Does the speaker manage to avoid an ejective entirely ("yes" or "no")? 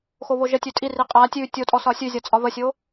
no